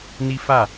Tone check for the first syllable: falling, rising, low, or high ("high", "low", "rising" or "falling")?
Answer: high